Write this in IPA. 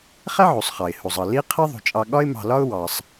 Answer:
χæ˥ʕu˩sˤχɑ˩ɪ̯ hu˩zˤʌ˩li˦ qʰɪ˦ ðˤṳ˩t͡ʃʼɑ˨ ɠɒ˦ɪ̯mɑ̤˨lɒ˦ʊ̯ wɑ˩sˤ

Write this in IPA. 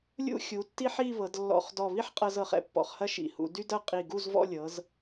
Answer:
lʲṵ˥˧xʲu˩˧tːi˥ħi˥˧ βɤ˩˧dlːɔ̰˧˩χdɔ˧˩ βi˥ħqʼɤ˧z ɤ˩˧χɛ̰˥pːɔ̰˩˧χhɐ˥ ʃḭ˩˧hṵ˩˧dy˥dɐ˥˧ qʼi˧˩ɡu˥˧zvɔ̰˥˧lʲɤ˩˧z

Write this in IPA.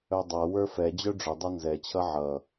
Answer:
œdˤa wə˞fɛ d͡ʑœɖ͡ʐʏ dˤʌnzɛ t͡ɕʰʌʕʌ

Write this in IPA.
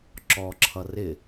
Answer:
ǁɔǁʰʌ rɪ

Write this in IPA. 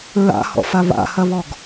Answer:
ɹa̰hɔ̰fa βa̰hɐβɔɡ

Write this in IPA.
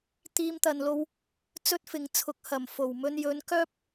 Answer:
t̪iː˧mt̪ɐ˨nlo˧w | t͡sɵ˥t̚fɪ˨ŋt͡sʰʊ˨˥k̚ hɐ˨˩m fo˨˩wmɵ˧n jɵ˨˥n kœː˥p̚

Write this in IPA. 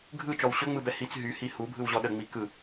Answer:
ɡʱɯt͡ʃɔw ɕɵŋ͡mɯbɛ hit͡s ɦyhi hubʱɯwʑɔ ɗəŋ͡mi kɯ

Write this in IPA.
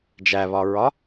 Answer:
d͡ʒæβɒɹɒ

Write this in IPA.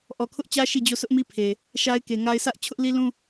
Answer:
ʔɔ˨ kʰʊ˦ʔt͡ɕä˦ ʃi˦˨d͡ʑo˦˨ sʰʊ˦ʔmi˦pʰe˨ | ʃa˦ɪ̯ke˨ŋa˦ɪ̯ sʰä˦ʔ t͡ɕʰʊ˦ʔli˦lũ˦

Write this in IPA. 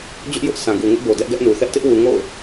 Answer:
d͡ʑʊ˦ʔjʊ˦ʔ sã˨ɡu˨ŋɪ˦ʔbo˨ dɛ˦ʔɡɛ˦ʔnu˨ θɛ˦ʔtɪ˦ʔwu˨ ŋo̰˦˨ʊ̯

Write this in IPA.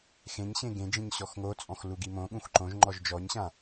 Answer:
xẽɲɕẽ ɡẽd͡ʒĩɲ ɕɔxŋot͡sʼɔ̃x luɡimõɠũx ǃõʒ ŋ͡ǃɔʒd͡ʒɔɲɕã

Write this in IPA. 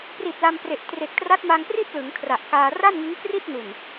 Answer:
pri˨˩t̚ la˧mpre˨˩ʔ tre˨˩k̚tra˦˥t̚ma˧ŋpri˥˩t̚ lɯ˩˦ŋkʰra˨˩ʔkaː˧ ra˥˩nŋɯ˦˥ŋkri˥˩t̚nu˨˩n

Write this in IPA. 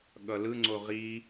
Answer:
ɠʌlɯŋ͡ǀo ʁi

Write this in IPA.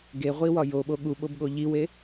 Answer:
ɡeʁʷiwɒ joɓo ɠuɓobɠo ʎiwe

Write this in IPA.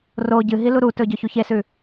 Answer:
ro ɟɨɦi luɾutɵ ɟɵçuçesʉ

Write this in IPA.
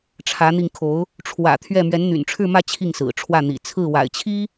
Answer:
ʈ͡ʂʰä˧˥n̪i˧ŋkʰo˧˥ʊ̯ | ʈ͡ʂʰwä̰˨˩t̪ʰɥɛ˥˩ mɥɛ˧˥nn̪y̰˨˩nʈ͡ʂʰɻ̩˥˧mä˥˧ t͡ɕʰi˥˩ŋsɹ̩˨˩ʈ͡ʂʰwä˥˩ n̪ḭ˨˩ t͡sʰɹ̩˥˩wa̰˨˩ɪ̯t͡ɕʰi˥

